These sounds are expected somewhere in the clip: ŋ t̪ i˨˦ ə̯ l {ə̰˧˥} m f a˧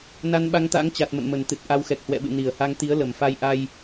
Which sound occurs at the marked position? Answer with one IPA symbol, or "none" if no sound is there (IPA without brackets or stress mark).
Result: ə˨˩